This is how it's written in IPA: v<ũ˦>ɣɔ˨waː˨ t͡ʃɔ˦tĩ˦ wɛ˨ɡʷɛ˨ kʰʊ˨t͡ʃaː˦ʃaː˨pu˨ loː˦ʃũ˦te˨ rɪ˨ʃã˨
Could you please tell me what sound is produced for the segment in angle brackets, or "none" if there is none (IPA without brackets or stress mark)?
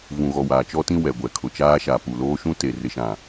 ũ˨